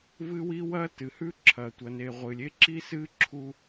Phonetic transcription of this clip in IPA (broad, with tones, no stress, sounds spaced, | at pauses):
v ɨ˦ w i˦ w ɐ˦ t ɨ˨ h ʉ˦ ǁʰ ɐ˨ tʷ ɐ˨ n e˨ ʁʷ ɨ˨ lʲ e˦ ǁ i˦ s ɨ˦ ǁʰ u˦